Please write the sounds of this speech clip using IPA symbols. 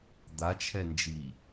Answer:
d̪at͡ʃʰɛnd͡ʒi

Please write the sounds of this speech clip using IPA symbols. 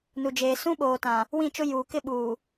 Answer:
nu˨d͡ʒeː˨ sũ˦ɓoː˨tã˨ | wĩ˦˨t͡ʃʊ˦ juː˨ kɪ˦ɓuː˨

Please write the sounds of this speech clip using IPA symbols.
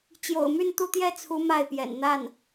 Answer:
t͡ɕjo̰˨˩ʊ̯my˥˧nt̪u˥˧t̪jɛ˥˩ t͡sʰu˧˥ ma˥˩ɪ̯pjɛ̰˨˩n n̪a˥˩n

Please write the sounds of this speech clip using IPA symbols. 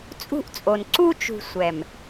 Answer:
t͡sʼṳ˦ʔt͡sʼo˨n ǀu˦t͡ʃṳ˨ sʷɛ˨m

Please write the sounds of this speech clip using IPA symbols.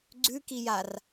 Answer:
ɡ͡ǀʉ kijar

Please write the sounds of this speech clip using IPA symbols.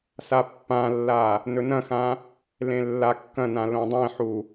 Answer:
sapːãlːa | nɵnɐ̃xã | lẽlːakːɐ̃nã lõdˤẽħu

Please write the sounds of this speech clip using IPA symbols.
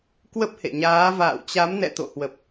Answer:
kwə˦˥p̚hḛ˧˨ɲaː˨˦ va̰ː˧˨wt͡ɕa˨˦mnɛ̰˧˨ t̪o̰˧˨hwə˨˩p̚

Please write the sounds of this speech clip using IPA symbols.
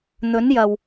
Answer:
n̪ɵ˨˥njɐ˨˩w

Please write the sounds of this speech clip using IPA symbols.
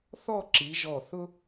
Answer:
θɔ˥˧ǁi˩˧ ʒɔ˧˩θʊ˥

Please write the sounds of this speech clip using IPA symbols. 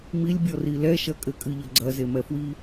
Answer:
milʲbʲɔri lɛʃɐ kʼɘkʼɨʎɐ ɡ͡ǀɐzemɛfwi

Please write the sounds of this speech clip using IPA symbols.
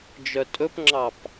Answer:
d͡ʒœtʼɵpŋ͡ǁɑp

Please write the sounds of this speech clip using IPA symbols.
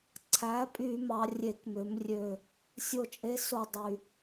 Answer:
ǀʰæ˩˥pʼy˧˩˧mɑ˩˧ rʲe˧˩˧kmø˩˧m rʲø˨˩ | sʲo˦˨t͡ʃʼe˦˥so˦˨ dˤy˨˩

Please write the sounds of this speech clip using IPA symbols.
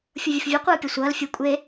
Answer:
fʲovʲəfvʲe qʷɯːpʲʌsʷʌːl fʲɯ kʷʼe

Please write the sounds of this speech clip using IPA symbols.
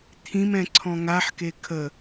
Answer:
t̪ʰĩmɛ̃ǀʰɔ̃ ŋaħke kʰə

